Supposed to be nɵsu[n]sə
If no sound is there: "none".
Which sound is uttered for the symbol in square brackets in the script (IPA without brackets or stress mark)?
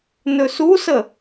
none